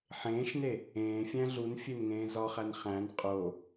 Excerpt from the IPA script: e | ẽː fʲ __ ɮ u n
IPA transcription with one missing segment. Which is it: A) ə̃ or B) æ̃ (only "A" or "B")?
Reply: B